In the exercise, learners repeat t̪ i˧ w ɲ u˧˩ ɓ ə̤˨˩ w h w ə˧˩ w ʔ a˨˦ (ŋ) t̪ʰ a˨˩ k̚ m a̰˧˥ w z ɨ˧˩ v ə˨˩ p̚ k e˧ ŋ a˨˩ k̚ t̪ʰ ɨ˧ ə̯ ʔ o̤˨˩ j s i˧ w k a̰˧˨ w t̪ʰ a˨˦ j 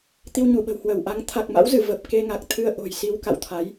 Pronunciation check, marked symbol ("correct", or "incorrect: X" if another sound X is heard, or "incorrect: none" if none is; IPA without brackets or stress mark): correct